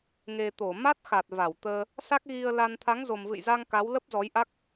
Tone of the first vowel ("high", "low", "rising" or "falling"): low